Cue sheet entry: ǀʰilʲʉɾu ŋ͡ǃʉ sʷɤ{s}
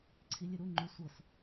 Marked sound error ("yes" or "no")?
no